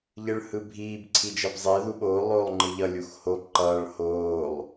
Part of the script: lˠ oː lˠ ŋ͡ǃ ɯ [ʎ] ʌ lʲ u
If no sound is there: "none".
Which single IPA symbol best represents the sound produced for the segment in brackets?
ʎ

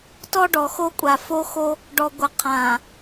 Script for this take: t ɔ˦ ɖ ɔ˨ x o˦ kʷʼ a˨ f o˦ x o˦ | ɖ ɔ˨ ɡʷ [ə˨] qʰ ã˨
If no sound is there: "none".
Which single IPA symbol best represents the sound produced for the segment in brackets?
ə˨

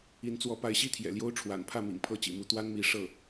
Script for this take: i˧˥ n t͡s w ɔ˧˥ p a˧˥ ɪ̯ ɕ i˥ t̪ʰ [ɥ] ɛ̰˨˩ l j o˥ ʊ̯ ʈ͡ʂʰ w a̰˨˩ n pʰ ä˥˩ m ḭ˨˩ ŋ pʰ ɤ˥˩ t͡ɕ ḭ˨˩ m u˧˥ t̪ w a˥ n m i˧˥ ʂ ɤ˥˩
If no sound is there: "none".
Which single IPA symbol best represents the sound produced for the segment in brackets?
j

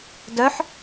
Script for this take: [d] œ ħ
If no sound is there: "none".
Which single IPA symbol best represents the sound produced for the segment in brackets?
d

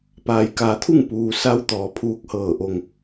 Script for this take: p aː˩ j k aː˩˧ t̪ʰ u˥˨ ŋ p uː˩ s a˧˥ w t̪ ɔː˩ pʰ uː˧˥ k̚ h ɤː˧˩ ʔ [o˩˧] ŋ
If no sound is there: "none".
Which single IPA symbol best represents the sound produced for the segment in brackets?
o˧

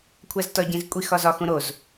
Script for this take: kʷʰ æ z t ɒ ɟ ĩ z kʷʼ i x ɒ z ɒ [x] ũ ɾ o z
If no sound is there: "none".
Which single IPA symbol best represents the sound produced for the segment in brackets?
x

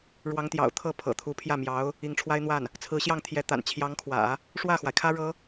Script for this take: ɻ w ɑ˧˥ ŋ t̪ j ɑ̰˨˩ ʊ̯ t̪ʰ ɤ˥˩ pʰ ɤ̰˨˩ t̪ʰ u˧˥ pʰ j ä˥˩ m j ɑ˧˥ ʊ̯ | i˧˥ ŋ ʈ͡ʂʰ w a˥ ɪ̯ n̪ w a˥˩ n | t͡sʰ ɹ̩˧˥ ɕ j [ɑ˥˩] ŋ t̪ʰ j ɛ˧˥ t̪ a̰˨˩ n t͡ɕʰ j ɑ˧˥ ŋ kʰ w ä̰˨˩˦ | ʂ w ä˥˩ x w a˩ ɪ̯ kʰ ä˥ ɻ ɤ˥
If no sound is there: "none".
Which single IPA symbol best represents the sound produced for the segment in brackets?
ɑ˥˩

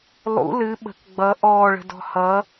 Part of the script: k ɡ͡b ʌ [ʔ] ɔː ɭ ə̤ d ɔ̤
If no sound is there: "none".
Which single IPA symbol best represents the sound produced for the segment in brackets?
ʔ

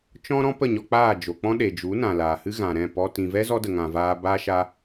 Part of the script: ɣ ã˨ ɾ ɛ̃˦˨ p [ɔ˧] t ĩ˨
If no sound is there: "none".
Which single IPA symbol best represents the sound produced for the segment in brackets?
ɔ˧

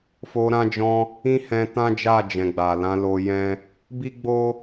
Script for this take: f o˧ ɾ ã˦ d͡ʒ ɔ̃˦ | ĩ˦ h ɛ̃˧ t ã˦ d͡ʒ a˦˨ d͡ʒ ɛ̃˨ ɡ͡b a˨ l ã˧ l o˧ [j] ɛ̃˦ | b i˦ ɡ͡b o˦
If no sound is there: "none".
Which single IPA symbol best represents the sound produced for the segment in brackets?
j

